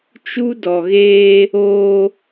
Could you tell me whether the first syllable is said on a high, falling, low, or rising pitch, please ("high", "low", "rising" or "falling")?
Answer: high